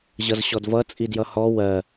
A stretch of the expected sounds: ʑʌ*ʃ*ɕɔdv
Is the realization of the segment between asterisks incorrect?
yes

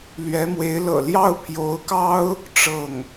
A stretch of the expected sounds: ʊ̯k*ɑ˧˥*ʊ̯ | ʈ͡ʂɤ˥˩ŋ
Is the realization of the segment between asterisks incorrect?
yes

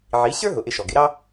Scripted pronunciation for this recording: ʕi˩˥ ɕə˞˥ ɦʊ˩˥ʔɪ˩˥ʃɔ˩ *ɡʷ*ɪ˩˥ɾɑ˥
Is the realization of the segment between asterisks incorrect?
yes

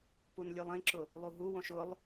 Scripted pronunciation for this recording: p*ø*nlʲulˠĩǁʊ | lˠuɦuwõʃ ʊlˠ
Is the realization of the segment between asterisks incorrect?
yes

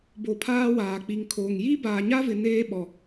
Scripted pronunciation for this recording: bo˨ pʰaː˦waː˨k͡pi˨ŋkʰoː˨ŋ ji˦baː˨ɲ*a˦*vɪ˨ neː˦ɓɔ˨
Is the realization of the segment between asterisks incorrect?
no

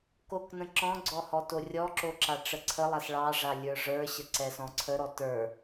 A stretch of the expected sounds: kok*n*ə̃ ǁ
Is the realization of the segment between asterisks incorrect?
no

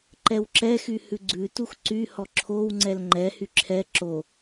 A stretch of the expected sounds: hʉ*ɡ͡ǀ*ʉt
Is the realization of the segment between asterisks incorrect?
no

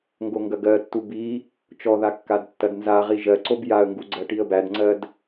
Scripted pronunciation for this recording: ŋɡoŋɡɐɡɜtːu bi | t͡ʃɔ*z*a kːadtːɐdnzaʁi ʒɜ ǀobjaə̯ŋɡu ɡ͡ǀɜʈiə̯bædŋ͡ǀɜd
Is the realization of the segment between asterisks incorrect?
yes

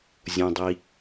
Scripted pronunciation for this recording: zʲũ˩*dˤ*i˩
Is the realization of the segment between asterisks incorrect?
no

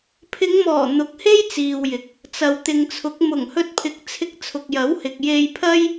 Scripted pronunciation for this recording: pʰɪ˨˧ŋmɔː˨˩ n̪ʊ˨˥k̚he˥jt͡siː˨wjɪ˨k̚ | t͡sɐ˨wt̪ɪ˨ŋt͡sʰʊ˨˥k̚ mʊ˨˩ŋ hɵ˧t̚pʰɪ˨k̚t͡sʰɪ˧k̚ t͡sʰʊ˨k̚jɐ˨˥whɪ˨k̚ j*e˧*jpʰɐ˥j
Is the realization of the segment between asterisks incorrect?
no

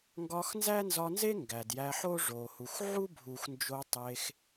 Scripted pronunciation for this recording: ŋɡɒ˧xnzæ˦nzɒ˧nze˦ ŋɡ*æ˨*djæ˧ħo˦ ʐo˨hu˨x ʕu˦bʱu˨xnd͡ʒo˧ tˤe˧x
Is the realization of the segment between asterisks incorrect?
no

